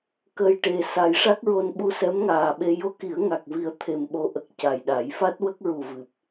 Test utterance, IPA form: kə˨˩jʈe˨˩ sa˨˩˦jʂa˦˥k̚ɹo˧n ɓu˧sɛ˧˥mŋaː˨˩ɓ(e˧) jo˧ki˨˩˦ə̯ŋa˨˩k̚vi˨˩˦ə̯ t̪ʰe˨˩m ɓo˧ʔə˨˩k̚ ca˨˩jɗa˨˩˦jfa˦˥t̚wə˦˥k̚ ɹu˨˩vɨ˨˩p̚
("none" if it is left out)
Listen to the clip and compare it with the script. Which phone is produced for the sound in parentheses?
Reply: e˧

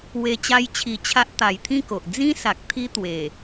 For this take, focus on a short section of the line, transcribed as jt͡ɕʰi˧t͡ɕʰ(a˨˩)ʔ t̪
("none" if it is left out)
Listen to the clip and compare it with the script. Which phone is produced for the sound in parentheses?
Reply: a˦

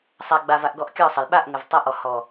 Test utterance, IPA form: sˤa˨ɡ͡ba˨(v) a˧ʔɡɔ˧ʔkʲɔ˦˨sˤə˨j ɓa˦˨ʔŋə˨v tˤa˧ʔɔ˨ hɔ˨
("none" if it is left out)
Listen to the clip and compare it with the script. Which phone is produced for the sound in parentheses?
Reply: v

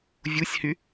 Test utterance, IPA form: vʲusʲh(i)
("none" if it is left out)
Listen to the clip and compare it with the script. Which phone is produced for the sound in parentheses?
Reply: y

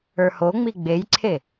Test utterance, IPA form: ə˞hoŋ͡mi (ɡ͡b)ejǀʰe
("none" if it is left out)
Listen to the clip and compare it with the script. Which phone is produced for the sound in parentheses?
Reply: ɡ͡b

